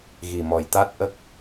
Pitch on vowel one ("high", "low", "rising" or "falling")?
low